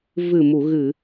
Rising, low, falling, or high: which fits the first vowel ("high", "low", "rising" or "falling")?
low